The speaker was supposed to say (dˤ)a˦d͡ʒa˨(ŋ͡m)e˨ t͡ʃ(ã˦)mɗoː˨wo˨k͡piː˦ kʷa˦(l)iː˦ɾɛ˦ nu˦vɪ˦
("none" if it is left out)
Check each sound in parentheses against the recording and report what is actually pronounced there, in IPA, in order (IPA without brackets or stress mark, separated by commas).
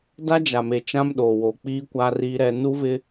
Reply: d, m, ã˦, r